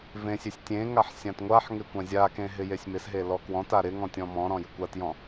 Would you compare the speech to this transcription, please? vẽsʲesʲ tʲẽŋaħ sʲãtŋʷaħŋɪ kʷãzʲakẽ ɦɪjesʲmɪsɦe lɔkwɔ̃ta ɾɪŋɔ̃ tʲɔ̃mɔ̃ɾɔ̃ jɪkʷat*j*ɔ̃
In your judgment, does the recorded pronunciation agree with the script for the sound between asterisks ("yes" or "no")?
yes